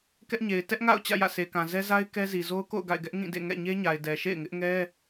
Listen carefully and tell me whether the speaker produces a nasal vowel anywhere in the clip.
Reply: yes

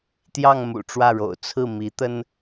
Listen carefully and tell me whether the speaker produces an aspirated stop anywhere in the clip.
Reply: yes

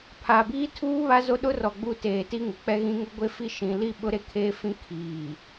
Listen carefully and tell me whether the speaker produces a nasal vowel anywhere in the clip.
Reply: yes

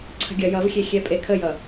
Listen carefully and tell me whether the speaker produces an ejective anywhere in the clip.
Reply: yes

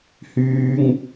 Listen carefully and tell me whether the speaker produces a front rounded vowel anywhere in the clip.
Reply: yes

